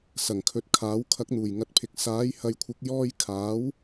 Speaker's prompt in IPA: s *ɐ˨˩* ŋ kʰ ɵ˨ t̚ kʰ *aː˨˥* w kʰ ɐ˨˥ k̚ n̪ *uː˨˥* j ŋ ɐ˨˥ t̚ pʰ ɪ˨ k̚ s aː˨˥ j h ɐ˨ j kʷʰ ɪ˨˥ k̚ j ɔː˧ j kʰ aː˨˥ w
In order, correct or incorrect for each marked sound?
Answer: correct, correct, incorrect

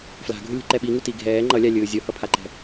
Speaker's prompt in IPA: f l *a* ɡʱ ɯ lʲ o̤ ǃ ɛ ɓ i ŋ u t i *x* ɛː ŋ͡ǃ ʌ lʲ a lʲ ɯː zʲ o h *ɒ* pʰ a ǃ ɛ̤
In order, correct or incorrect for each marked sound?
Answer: incorrect, incorrect, incorrect

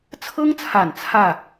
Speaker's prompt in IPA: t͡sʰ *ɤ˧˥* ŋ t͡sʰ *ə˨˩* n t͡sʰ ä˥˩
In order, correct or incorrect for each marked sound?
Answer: incorrect, incorrect

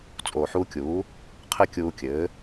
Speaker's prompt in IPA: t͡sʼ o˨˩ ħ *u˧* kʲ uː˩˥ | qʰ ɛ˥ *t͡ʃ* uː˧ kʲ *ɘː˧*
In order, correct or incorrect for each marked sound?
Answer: correct, incorrect, incorrect

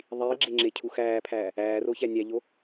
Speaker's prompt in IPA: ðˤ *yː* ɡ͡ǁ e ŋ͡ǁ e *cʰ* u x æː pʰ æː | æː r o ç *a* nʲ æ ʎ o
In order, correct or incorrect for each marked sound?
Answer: incorrect, correct, incorrect

